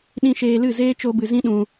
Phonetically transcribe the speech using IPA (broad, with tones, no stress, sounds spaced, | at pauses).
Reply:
ɗ ĩ˧ ʃ eː˧ l ɨ˦˨ z eː˦ t͡ʃ o˧ b ɨ˨ z ĩ˦ ɗ ũ˧